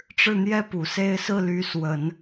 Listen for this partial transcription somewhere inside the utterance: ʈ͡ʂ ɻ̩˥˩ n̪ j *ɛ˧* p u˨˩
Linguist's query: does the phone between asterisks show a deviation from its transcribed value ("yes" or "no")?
yes